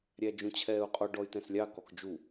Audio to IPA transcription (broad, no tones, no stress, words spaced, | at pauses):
ɾʲæd͡ʒũt͡ɕʰɛːu̯qʼɔ ɖɔy̯tɛ̃slʲɑ kɔkd͡ʒu